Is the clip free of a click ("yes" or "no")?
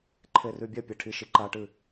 no